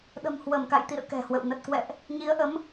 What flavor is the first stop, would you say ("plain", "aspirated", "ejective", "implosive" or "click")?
implosive